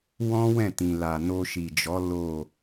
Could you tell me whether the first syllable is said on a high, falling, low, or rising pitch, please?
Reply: high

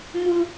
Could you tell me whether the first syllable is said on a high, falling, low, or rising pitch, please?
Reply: high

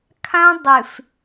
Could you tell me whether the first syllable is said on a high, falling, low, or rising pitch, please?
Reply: high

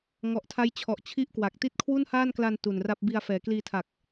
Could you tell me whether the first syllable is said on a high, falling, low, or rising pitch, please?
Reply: low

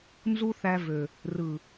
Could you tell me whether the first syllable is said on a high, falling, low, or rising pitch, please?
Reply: high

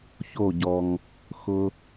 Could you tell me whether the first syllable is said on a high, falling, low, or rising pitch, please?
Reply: falling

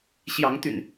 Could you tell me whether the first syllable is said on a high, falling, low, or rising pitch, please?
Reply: rising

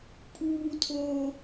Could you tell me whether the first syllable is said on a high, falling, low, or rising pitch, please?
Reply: high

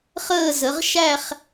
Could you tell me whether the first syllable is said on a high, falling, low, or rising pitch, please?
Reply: falling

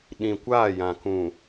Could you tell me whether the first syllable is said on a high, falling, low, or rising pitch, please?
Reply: low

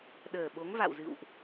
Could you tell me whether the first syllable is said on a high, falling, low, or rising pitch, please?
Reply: low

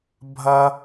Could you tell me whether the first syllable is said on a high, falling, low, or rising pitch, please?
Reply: high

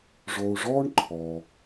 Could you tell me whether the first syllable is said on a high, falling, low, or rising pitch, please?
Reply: low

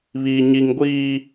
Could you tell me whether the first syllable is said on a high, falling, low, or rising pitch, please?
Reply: high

